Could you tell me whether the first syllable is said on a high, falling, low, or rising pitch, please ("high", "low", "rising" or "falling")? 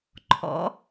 rising